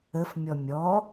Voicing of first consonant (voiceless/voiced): voiceless